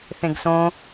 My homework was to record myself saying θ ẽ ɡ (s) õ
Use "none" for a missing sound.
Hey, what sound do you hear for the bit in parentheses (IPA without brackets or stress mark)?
s